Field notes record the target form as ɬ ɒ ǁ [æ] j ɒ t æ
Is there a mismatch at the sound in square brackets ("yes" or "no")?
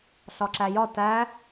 no